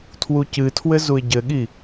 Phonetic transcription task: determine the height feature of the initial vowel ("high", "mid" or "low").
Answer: high